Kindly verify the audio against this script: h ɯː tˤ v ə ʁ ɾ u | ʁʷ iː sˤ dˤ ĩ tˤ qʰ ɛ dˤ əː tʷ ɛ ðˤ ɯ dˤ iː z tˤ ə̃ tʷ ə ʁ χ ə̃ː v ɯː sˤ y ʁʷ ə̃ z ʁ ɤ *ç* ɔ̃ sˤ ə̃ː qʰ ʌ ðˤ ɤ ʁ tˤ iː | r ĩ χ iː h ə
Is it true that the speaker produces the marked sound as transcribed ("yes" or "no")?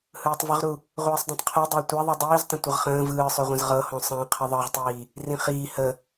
no